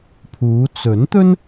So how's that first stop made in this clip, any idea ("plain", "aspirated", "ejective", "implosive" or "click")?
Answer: aspirated